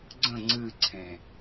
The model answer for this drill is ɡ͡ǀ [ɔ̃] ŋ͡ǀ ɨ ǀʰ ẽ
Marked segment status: incorrect: ə̃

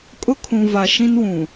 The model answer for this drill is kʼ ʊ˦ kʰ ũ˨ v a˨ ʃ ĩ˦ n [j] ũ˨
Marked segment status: incorrect: w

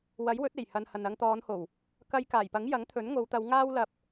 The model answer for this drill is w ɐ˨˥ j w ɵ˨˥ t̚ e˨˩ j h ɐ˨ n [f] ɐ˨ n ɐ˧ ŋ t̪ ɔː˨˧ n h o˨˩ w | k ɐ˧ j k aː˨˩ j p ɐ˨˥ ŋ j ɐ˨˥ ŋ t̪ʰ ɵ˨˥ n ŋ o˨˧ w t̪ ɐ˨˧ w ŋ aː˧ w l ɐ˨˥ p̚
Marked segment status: incorrect: h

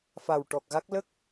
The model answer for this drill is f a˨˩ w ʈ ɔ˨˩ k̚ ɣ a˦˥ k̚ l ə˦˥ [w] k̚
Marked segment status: incorrect: none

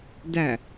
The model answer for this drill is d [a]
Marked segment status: incorrect: æ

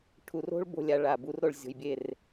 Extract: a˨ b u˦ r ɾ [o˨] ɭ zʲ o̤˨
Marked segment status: correct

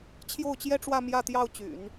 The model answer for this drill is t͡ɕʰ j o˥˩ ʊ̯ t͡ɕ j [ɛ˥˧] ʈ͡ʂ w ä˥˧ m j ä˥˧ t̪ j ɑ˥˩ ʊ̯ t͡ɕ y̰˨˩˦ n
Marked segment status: incorrect: ɛ˥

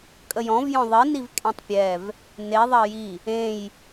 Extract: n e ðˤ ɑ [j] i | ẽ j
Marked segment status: correct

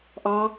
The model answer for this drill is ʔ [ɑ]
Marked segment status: correct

